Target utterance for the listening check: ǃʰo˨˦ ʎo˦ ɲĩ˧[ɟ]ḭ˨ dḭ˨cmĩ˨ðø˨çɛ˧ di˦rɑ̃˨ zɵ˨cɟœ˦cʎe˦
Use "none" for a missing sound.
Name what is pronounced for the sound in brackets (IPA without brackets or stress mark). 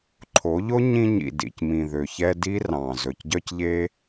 ɲ